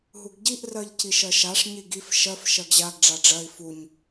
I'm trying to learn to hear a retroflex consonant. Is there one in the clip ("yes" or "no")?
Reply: yes